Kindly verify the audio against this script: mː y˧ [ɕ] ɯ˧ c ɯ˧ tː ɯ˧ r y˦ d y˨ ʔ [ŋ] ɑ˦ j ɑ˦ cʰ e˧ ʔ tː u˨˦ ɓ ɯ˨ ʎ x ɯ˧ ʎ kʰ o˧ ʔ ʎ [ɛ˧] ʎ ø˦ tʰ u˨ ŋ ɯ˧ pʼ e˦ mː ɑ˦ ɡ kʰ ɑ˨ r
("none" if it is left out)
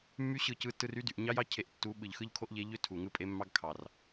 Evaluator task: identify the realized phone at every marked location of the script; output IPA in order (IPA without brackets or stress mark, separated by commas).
ɕ, ɲ, e˧